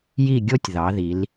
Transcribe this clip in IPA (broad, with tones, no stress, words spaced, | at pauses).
ji˥˧ɡʲo˥tʲ ðɑ˩˧ði˩˧l